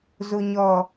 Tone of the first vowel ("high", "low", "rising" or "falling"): low